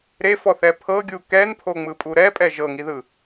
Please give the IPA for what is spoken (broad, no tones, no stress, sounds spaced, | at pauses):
ɾ e f ɔ θ ɛ pʰ ɤ ɡʲ u k ɛ n pʰ o ŋ͡m ɯ pʼ u ɾ ɛ pʼ ɛ ʒ ɤ ŋ i ð ɯ